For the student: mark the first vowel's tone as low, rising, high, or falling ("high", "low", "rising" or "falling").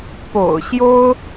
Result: low